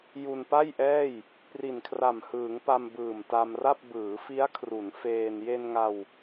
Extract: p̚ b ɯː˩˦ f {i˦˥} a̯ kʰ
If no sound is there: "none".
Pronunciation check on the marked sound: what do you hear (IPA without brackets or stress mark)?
i˦˥